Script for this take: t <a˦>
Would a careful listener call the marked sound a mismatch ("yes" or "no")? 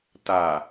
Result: yes